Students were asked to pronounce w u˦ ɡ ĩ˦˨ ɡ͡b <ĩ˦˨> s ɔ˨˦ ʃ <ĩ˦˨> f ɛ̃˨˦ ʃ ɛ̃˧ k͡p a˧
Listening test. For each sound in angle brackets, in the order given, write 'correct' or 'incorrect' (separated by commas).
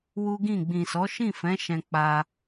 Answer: incorrect, correct